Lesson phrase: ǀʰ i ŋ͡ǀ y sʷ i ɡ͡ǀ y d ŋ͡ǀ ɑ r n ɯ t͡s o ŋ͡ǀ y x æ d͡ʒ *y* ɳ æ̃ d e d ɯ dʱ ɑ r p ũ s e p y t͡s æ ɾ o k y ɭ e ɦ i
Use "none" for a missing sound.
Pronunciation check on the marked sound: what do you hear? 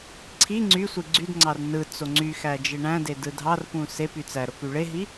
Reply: e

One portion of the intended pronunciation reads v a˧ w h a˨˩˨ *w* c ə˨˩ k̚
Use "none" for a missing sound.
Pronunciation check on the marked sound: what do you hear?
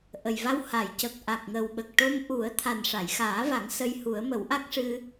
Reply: j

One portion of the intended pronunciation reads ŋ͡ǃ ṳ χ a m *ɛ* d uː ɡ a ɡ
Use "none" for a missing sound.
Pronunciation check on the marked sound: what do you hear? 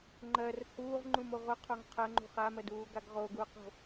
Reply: ɜ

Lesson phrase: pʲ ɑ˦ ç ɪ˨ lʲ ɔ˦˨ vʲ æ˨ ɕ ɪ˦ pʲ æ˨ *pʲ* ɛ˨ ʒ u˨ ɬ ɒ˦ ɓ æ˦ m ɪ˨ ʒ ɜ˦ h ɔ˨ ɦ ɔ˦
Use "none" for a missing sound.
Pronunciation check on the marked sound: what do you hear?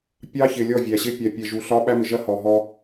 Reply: pʲ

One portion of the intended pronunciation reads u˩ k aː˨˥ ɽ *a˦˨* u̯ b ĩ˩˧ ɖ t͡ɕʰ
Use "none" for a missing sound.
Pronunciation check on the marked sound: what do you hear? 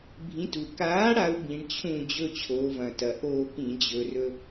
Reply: a˨˥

